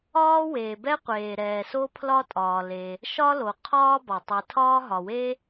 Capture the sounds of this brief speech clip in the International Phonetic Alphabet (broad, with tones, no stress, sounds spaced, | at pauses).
ɒː˥ w eː˩ b ɛ˥ qʷ eː˩ ɾ ɛː˩ s o˥ pʰ l ɒ˥ tʼ ɒː˩ l e˩ | ʃ ɒ˥ l o˩ qʰ ɒː˥ b ɒ˩ tˤ i˩ tʰ ɒː˥ ɦ ɒ˩ w e˥